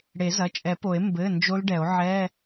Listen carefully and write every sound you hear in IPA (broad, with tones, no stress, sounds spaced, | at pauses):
ɽ e˨˩˦ z ɐ˩˧˩ t͡ʃʼ ɛ˨˩˦ p o˨˩˦ e̯ m b ɘ˩˧˩ n d͡ʒ o˦˥ l ɖ ɛ˨˩˦ o̯ ʕ ɛ˧˥˧